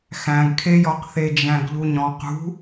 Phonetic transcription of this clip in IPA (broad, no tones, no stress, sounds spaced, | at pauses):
x æ̃ ɡ kʰ e j ɔ q θ e d͡ʒ æ̃ ɡ ʎ u ɲ ɔ̃ q ṳ